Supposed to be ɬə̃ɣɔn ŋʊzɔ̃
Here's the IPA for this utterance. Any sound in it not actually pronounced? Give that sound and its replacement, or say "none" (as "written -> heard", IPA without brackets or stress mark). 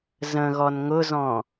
ɬ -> z